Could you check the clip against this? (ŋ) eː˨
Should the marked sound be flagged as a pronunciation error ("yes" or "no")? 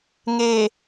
no